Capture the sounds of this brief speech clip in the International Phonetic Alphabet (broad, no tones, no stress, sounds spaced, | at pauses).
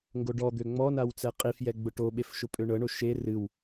ŋ ɡ o ɖ ɔ d̪ ø ŋ͡m ɔ n a w t͡s ɛ qʼ i f j ɛ ɡ͡b ʊ ʈ o ɓ e f ʃ ʊ pʼ ø ɳ ɤ ɳ o ʃ e r ɨ w